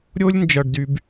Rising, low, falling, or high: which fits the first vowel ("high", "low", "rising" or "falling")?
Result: high